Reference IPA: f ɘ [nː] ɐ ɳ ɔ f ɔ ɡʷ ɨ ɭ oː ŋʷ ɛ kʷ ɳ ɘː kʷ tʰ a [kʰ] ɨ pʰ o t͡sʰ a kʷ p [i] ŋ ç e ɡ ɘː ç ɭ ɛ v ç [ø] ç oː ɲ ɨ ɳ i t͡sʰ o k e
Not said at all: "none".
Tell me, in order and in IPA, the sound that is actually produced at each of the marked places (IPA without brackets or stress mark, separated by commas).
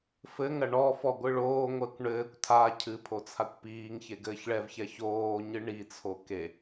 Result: ŋ, cʰ, iː, ɛ